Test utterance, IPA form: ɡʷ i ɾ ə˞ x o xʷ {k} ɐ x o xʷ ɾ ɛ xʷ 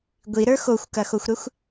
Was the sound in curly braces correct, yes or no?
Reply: yes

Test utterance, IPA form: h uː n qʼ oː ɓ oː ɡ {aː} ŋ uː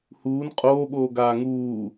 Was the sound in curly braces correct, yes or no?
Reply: yes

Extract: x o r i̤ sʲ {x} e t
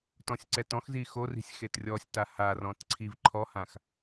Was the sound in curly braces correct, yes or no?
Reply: yes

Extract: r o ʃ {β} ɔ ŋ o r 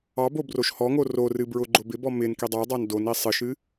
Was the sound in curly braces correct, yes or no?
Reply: no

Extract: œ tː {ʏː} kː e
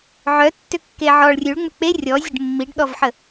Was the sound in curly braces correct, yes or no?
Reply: no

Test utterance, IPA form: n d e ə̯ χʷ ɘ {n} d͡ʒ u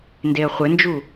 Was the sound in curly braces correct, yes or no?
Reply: yes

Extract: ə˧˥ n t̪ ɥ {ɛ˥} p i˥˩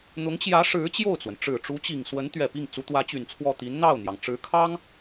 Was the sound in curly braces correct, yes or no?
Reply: no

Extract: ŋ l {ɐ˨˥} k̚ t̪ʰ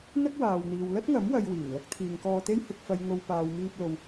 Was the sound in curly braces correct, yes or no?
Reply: no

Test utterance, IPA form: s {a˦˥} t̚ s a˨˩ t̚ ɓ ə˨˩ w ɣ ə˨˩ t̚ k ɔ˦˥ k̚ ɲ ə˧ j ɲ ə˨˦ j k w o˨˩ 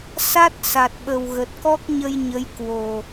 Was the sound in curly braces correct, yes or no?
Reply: yes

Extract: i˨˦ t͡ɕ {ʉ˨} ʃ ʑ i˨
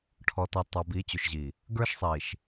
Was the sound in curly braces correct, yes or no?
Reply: yes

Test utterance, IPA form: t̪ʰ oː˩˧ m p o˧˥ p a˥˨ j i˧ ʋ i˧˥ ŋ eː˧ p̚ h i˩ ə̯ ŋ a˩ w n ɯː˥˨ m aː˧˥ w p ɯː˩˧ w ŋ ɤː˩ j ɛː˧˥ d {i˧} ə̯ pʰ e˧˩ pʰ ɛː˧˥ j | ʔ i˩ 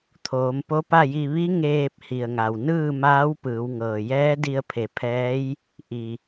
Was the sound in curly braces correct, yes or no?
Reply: yes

